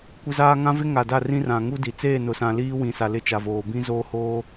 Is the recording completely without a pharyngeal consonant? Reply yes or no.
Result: yes